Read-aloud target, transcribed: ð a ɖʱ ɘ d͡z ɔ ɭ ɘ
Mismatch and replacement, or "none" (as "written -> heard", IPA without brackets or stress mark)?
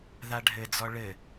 none